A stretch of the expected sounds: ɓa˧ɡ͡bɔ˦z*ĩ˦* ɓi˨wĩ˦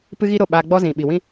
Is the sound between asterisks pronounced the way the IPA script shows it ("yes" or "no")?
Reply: no